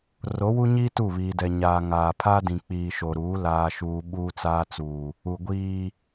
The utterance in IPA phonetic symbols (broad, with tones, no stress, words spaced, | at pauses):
ro˨˦wu˦ɲiː˦ tu˦˨βiː˨dɛ˨ ɲaː˨ ŋaː˨ pʰaː˦dĩ˨ k͡piː˨ ʃo˨ɾuː˨˦ laː˨ʃuː˨ ɓuː˦t͡saː˦t͡suː˨ | u˨ ɡʷiː˨